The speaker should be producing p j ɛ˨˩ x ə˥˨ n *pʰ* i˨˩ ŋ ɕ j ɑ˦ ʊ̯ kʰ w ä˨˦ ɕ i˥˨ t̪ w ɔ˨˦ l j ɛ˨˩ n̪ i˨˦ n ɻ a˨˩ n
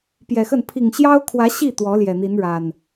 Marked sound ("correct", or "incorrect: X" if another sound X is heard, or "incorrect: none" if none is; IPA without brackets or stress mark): correct